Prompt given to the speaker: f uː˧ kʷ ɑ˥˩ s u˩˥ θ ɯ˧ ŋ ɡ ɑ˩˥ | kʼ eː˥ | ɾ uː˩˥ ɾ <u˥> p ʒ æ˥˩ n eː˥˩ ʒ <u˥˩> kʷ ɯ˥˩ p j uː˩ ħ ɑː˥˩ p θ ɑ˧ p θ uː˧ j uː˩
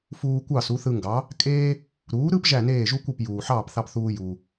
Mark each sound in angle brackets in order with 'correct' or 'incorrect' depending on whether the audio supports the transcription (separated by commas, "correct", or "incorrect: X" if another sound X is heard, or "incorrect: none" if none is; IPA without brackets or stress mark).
incorrect: ɯ˥, incorrect: u˥